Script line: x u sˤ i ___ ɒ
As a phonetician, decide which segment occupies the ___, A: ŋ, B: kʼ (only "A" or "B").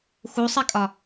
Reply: B